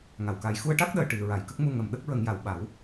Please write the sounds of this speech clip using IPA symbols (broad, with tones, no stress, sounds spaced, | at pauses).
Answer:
ŋ a˨˩˨ w k a˨˩˦ j x u˧ ə̯ ʈ a˦˥ k̚ ɗ əː˨˩ ʈ i˨˩˨ ɹ a˨˩˨ j k ə˦˥ k̚ m u˧ ŋ ə˨˩ m ɗ ə˦˥ k̚ ɹ ə˨˩˦ ŋ j a˨˩˨ w ɓ a˨˩˦ w